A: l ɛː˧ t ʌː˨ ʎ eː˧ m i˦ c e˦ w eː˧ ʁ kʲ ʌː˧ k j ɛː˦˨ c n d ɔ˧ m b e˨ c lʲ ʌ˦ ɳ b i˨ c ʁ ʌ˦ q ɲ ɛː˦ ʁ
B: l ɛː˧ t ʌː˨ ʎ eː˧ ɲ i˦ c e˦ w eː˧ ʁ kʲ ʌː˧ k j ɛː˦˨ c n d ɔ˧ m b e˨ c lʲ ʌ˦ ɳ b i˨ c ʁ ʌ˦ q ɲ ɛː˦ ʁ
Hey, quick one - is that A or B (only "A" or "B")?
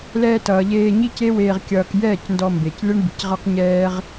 B